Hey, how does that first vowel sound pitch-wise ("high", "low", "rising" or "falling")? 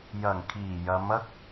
low